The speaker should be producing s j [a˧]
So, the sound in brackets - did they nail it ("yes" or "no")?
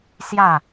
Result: no